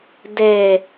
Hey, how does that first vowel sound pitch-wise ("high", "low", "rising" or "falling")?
low